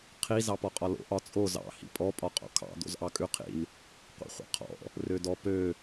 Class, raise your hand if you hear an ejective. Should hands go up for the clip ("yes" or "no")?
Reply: yes